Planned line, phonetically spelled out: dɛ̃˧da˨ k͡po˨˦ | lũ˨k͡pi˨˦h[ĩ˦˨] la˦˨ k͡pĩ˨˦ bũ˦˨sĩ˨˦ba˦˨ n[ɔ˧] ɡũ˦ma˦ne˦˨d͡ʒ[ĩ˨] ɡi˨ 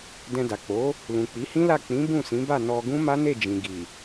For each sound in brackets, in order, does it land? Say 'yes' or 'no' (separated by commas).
no, yes, yes